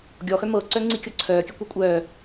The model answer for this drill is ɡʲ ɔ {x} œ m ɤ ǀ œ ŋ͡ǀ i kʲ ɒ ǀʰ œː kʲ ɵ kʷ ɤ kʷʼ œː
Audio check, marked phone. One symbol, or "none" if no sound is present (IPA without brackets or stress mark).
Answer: x